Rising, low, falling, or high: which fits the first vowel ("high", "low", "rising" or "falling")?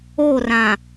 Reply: falling